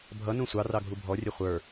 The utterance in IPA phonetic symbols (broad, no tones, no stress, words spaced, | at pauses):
bʱʌ nũsʷɑrɑ ɡʱubʱɔrʲɛ χʷə˞